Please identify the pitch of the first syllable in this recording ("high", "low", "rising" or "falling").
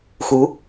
rising